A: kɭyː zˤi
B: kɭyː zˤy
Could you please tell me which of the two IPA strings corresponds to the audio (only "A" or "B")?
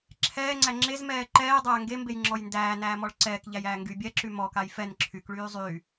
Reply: B